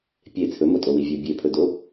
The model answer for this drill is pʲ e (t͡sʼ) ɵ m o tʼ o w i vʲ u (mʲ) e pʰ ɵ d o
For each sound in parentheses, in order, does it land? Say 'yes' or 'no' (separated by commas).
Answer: no, no